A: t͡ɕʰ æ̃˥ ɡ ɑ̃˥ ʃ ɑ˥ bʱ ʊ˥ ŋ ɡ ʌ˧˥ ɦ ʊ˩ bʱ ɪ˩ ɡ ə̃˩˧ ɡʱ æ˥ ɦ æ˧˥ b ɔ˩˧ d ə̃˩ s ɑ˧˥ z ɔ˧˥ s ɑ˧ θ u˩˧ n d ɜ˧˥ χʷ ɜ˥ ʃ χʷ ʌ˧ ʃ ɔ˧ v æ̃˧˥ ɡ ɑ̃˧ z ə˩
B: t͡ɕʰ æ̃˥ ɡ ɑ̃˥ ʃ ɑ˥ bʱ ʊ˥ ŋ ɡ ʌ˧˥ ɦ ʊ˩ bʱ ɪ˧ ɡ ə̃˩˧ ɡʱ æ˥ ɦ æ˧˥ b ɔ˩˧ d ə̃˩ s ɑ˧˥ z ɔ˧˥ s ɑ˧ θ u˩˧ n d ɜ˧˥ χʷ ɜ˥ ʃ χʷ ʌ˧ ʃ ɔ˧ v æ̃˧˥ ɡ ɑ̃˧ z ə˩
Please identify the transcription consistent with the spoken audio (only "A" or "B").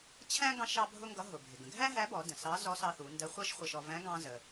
A